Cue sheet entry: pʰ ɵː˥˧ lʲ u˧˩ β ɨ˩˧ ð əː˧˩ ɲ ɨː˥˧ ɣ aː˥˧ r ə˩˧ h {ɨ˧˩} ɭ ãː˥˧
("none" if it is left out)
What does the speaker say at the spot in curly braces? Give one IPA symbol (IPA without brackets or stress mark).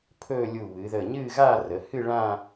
ɨ˥˧